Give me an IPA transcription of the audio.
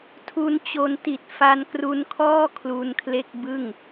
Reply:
tʰu˧nt͡ɕo˧nti˨˩t̚ fa˧nkru˧nkʰɔː˥˩ kʰlu˧nkʰle˥˩k̚ bɯ˥˩ŋ

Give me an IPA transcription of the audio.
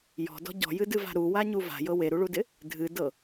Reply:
jɔ̤dɔ̤ ɟɔ̤jɨdɨva̤ ɾuwaɲu va̤jɤ weɾuɭudɪ | dʱɨdɤ

